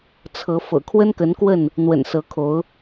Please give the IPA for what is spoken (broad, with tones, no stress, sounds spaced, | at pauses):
t͡sʰ ɤ˨˦ f ɤ̰˨˩ kʰ w ə˦ n k ə˨˦ n k w ə˥˨ n | n̪ w ə̰˨˩ n s ɤ˨˦ kʰ o˨˦ ʊ̯